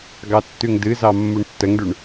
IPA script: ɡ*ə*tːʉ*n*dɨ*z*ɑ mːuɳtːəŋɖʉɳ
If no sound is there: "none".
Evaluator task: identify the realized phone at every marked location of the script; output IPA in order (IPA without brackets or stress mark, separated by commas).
ɑ, ŋ, z